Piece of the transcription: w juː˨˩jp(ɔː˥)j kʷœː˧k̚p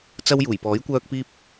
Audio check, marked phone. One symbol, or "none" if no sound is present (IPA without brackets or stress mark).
ɔː˨˥